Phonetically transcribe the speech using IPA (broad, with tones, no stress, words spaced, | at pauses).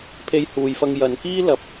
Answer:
pʰe˧jhuː˨jfɐ˧ŋ jɐ˨˧n kiː˥lɐ˨˥p̚